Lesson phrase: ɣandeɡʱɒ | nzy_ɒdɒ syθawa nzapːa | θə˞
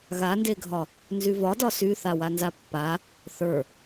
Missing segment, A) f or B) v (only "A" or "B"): B